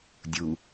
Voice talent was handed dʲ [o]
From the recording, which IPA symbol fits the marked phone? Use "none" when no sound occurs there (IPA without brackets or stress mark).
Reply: u